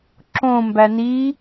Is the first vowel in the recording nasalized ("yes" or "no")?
yes